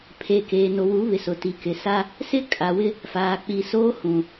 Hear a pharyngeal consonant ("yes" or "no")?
no